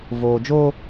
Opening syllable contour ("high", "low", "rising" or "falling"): low